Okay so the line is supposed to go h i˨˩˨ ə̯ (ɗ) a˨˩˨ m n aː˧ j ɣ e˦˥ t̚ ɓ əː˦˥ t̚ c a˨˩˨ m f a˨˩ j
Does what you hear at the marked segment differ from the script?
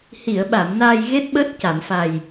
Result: yes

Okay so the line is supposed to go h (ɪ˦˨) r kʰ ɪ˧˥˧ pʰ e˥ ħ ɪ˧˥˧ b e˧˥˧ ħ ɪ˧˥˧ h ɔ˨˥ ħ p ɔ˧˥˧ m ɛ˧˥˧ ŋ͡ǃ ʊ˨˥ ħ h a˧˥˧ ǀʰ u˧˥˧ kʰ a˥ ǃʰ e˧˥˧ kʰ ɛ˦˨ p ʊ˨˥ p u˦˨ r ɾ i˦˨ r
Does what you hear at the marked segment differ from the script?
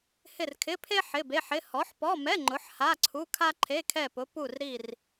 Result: no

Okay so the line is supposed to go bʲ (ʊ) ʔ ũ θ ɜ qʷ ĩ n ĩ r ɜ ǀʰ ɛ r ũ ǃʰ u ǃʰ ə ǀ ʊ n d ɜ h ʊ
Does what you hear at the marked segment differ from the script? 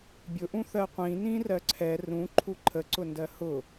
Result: no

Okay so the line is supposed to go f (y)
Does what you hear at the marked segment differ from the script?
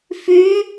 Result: no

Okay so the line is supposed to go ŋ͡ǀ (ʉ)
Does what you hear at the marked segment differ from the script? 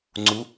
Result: yes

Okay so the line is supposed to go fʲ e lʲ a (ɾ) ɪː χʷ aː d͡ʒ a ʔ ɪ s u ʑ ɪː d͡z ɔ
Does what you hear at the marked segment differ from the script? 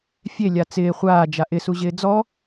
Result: yes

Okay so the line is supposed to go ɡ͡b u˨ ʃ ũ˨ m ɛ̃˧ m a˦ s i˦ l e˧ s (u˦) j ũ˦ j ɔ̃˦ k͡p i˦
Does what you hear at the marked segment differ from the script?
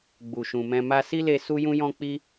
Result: no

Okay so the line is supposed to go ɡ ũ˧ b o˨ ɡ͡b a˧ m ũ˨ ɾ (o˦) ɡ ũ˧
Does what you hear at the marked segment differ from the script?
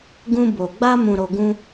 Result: yes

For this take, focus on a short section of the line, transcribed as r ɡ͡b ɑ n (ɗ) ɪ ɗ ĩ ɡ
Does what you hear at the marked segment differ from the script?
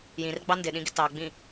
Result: yes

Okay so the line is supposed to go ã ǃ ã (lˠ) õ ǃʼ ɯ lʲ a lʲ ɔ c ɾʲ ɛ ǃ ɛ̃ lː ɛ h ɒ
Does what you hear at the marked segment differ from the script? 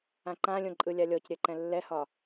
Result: yes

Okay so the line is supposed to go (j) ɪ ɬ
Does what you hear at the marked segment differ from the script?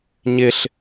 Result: yes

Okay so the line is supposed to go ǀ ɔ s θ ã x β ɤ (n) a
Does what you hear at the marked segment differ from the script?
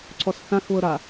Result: yes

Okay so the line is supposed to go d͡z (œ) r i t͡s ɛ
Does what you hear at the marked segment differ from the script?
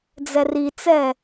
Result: yes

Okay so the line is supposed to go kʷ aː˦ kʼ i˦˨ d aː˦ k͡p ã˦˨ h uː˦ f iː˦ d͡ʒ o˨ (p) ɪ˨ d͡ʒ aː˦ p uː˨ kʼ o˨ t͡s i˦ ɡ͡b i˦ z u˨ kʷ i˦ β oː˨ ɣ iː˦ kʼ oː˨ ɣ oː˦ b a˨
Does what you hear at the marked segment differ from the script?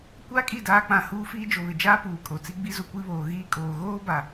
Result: yes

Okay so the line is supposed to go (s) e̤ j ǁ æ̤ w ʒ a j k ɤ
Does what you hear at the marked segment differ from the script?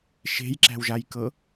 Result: yes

